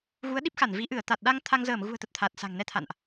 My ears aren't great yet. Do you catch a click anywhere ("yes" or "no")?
no